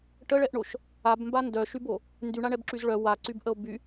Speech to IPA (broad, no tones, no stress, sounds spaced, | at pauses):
ʈ ə ɭ ɛ ʔ ɳ o ʃ | a b m b a n d œ ʃ y b o | n d y ɳ a ɳ ɛ b ǁ y z ɭ œ w a ǀ y b ʔ ə o̯ b y